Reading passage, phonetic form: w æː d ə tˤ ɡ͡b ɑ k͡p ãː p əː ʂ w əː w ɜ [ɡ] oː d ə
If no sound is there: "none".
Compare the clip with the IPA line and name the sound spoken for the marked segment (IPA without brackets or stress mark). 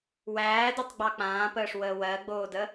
ɡ͡b